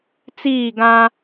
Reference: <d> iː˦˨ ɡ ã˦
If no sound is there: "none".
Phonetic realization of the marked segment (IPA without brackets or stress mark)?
t͡s